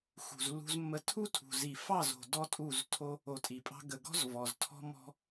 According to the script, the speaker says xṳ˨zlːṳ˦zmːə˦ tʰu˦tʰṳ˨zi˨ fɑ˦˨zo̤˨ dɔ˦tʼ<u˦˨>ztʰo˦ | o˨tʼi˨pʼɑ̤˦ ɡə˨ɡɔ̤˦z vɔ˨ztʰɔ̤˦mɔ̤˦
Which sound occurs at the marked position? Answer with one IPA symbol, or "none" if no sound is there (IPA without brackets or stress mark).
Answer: u˦˨